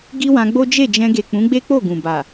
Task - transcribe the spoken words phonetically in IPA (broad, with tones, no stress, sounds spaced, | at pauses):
ɡ i˦ w ã˧ ɡ͡b o˦ d͡ʒ e˦˨ d͡ʒ ɛ̃˧ ɡ e˨ k͡p ũ˨˦ ɡ͡b e˦ k͡p o˦˨ ɡ ũ˨ b a˨